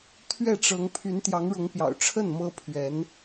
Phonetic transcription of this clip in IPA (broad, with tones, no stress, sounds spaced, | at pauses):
t̪ʰ ɥ ɛ˥˩ ʈ͡ʂ ɤ˧˥ ŋ pʰ y˧˥ n t̪ j ɑ˧˥ ŋ ɻ ʊ˧˥ ŋ p j ɑ̰˨˩ ʊ̯ ʈ͡ʂʰ ə˥˩ n m ɤ˥ pʰ ɥ ɛ˧˥ n